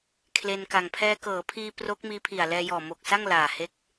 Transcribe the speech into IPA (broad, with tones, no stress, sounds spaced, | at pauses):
kʰ l e˧ n k a˨˩ ŋ pʰ ɛː˧ k ɤː˩˦ pʰ iː˧ p r o˦˥ k̚ m iː˦˥ pʰ i˨˩ a̯ l ɛː˧ j ɔː˨˩ m o˨˩ k̚ s a˥˩ ŋ l aː˨˩ h e˦˥ k̚